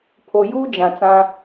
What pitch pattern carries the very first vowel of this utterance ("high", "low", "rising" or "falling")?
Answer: low